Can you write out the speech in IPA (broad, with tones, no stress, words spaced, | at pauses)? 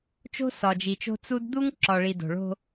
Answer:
t͡ʃo̤˦sɒ˨d͡ʒi˨t͡ʃo̤˦ t͡su˦d d̪u˦ŋ ǁɒ˨ɭi˨ do̤˨ɭo̤˦